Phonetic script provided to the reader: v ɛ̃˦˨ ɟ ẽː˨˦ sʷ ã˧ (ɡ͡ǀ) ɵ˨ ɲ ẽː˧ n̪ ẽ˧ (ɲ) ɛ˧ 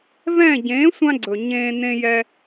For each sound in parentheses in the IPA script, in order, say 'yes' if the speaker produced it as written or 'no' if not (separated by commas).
yes, no